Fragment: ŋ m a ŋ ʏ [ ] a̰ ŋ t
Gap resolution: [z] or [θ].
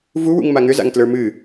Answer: z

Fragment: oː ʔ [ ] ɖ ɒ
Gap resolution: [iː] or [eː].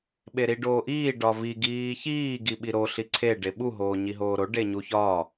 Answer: iː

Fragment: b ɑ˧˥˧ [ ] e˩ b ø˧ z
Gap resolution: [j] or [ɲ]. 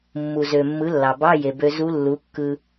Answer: j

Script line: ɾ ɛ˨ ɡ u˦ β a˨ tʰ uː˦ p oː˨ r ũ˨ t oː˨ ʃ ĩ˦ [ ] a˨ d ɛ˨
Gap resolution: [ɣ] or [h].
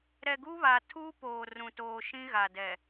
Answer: ɣ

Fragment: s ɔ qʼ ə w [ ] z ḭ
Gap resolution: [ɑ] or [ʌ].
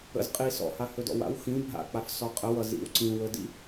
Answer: ʌ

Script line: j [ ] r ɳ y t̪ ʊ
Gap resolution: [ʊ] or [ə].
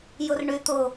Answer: ʊ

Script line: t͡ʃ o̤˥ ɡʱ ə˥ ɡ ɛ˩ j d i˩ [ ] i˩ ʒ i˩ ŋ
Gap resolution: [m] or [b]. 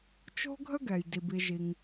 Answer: b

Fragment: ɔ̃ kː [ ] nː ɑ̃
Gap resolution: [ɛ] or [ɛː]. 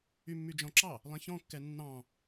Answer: ɛ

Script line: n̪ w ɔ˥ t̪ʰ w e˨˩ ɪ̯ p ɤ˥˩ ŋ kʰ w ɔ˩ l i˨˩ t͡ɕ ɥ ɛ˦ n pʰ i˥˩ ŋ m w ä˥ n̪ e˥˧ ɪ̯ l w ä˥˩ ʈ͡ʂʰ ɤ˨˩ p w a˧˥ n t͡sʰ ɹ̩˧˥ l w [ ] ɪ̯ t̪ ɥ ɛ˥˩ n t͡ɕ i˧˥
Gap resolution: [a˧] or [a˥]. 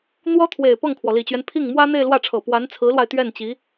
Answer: a˧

